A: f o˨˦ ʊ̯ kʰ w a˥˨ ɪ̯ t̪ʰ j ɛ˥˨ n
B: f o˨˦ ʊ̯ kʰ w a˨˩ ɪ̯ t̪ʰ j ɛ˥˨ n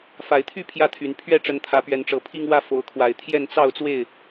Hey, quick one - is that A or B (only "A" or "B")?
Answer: B